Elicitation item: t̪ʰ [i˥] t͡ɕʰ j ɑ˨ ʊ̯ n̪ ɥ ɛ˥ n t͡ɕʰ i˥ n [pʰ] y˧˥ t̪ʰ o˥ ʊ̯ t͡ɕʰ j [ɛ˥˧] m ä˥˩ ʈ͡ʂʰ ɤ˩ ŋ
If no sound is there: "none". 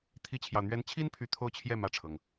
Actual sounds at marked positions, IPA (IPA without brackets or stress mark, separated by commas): i˥, pʰ, ɛ˥˧